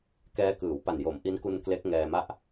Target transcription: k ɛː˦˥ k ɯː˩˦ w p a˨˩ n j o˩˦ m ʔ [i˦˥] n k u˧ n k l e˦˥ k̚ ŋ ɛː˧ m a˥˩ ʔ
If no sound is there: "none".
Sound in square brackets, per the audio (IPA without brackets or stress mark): i˦˥